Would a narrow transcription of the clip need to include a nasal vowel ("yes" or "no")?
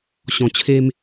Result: yes